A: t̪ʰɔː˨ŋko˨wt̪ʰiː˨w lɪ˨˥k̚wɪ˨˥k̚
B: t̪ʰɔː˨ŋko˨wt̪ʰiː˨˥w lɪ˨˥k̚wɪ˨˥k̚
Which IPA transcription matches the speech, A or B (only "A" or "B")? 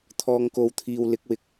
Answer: A